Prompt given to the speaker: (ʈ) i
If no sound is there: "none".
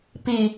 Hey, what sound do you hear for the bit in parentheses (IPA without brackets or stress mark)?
p